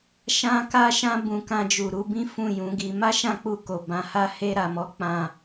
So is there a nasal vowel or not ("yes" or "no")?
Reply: yes